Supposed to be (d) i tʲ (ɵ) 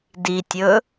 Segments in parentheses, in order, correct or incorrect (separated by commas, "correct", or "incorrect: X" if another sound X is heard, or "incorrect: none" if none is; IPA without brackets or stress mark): correct, correct